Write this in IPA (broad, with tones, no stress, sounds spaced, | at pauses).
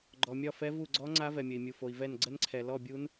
ɡ͡ǃ ɔ˨ mʲ ɒ˥˧ f ɛ˦˥ v u˥˧ ɡ͡ǀ ɔ˦˥ ŋ͡ǀ a˦˥ v ɛ˨ mʲ ə˨ i̯ mʲ u˨ f o˨ i̯ v ɛ˥˧ n ɡ͡ǀ ə˦˥ n ǀʰ ɛ˨ l ɔ˥˧ bʲ u˦˥ n